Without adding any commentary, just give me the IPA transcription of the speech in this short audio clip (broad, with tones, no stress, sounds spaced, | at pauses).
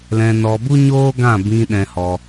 l ɛ̃˧ n ɔ˧ b u˦ ɲ oː˦ ɡ ã˦˨ b ĩ˧ ɗ ɛ̃˧ h ɔ˧